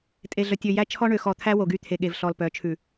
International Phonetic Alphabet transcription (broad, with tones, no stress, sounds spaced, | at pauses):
tʼ e˨ ɮ œ˨ tʲ ø˨ j æ˦ t͡ʃʰ ɔ˦ ɳ ø˨ x ɔ˨ t̪ʰ æ˦ w o˨ ɡ y˦ t̪ʰ e˨ ɠ e˨ v ɬ ɔ˨ l p œ˨˦ t͡ʃʰ ʉ˨